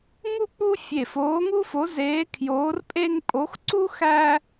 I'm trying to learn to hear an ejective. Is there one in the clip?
yes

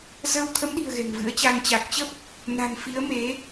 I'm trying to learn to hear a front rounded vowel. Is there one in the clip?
no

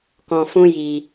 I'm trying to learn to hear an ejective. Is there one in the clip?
no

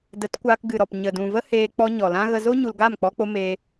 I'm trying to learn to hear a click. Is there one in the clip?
no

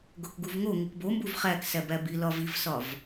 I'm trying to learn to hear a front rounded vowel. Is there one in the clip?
no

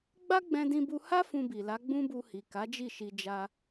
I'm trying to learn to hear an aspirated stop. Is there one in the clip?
no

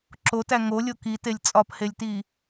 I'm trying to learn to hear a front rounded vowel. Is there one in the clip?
no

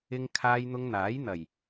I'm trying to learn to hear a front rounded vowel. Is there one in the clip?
no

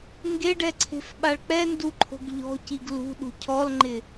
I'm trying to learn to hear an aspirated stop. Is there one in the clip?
yes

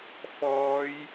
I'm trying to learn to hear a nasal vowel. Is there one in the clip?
no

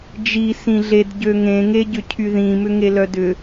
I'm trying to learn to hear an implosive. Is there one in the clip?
no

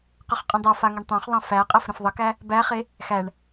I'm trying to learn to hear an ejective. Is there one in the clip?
yes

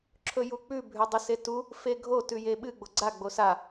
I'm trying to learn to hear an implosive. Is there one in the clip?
yes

